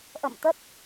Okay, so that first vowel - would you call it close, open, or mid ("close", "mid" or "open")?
mid